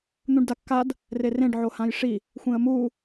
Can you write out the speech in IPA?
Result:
n̪ũɖdakːad | rerẽɖ ʕohãjʂi | xʷẽə̯mu

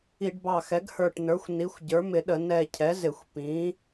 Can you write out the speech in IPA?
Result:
i˧˩˧ɖbɑ˧˩ xɛ˩˥ɡhə˞˧˩ʈnə˞˩˥xʷ ni˩˥xʷ ɟə˞˩˥mɪ˧˩˧ɗə˧˩˧ nɛ˧˩cʰɛ˩˥zɪ˧˩˧xʷ pĩ˩˥

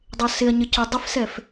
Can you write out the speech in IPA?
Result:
dˤɪɐ̯sɪɐ̯ɲə cʊ dˤɪfsɛf

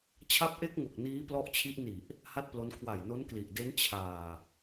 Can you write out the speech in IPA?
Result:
t͡ɕʰa˦˥p̚ʔe˦˥k̚ŋo˨˩k̚ niː˦˥plɔ˦˥ʔt͡ɕʰi˦˥ʔ ni˨˩ʔ | ha˥˩t̚plo˦˥n kʰwa˨˩jno˦˥nkli˨˩ʔde˦˥n t͡ɕʰaː˨˩

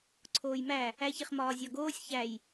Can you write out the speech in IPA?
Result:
ǀʰoːjmæ | æçeχmɒː zʲɒɡoːsʲ çæj

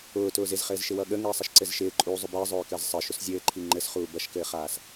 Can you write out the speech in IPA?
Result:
ʊːtʊːz ɪzχɘːzʃɪwʌ ɠəŋɘːsˤəʃǀɘz ʃɪːǃʼuːzˤʊ bɘːzˤʊːkəːz sˤəːʃʊs zʲɘːǃʰi ŋ͡ǃɘsχuː bʌʃkɘːχaːs

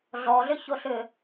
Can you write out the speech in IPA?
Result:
ɮɔɮʏçoɬʏ

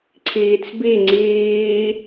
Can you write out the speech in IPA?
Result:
ǀʰiːt͡sbi ŋ͡ǀiː

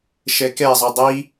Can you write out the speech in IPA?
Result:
ʃɛkɛzˤo dˤi

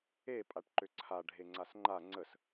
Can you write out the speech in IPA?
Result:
e pʼaʈǃʏǀʰa ɖʱeŋ͡ǀasŋ͡ǃa ŋ͡ǀəs

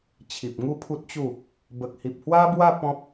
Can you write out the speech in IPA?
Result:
t͡ɕʰi˨p̚ŋu˥˧pʰu˦t̚t͡ɕu˥˧ | bə˨k̚hi˨p̚hwa˦bwa˥˧ pɔ̃˦p̚

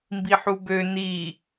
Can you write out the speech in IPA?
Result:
mbiħubø ni

